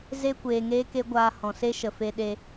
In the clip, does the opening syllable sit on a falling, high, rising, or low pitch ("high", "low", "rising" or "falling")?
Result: high